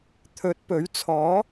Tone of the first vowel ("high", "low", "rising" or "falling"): rising